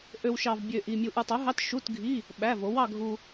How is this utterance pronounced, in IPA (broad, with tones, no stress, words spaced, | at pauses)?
ʔø˧wʃɑ˧v bʲø˧ʔi˧ mʲu˧ʔu˧tˤo˨˥ɦɑ˧˥˧t ʃu˧˥˧tɡʱi˧˥˧ | ɓæ˧˥˧vo˨˥w ɑ˧ɡʱu˧